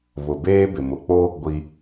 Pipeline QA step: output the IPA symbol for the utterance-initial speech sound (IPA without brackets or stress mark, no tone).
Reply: β